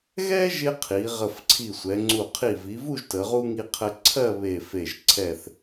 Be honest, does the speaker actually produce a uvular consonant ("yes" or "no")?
yes